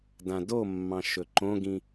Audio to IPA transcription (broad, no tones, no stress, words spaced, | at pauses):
dãdomːɑ̃ ʃɵǃõɡĩ